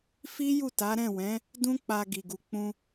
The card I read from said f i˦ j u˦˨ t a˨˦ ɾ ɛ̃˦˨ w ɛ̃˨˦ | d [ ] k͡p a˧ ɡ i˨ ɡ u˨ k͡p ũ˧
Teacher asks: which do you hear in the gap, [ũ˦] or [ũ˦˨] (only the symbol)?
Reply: ũ˦